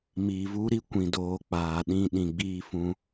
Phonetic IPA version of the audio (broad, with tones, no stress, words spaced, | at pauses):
miː˨vu˦ɾi˦ kʷĩ˨doː˨ k͡paː˨ ɗĩ˧ ɗĩ˨ɡ͡biː˧ fũ˧